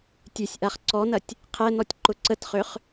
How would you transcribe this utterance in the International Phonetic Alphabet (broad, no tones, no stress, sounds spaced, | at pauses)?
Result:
tʲ ø sʲ ʔ a χ ǀ ɔ n ɐ tʲ | qʰ ɛ n ɔ tʲ ǃ ʊ ǀ ə t χ ø χ